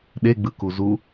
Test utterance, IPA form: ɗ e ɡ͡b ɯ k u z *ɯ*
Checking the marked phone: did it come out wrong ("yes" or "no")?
yes